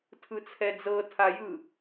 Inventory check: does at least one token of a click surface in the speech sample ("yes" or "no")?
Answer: no